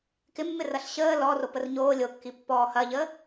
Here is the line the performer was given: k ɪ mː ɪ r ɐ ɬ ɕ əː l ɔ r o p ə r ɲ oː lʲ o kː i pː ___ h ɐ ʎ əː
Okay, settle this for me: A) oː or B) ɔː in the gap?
B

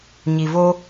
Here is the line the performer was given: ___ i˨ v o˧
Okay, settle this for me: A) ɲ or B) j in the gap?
A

